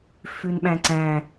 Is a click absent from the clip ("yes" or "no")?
no